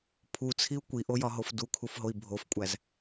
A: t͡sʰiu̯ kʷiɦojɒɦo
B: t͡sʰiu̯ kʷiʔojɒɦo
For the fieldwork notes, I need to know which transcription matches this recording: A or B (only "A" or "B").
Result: B